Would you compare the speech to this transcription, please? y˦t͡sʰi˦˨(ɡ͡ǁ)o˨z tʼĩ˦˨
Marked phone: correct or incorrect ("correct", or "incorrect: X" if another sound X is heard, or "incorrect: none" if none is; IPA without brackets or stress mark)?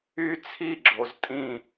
correct